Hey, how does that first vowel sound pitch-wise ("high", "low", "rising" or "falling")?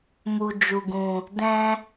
low